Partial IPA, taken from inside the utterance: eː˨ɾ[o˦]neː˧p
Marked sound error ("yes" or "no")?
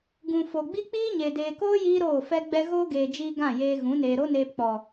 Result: no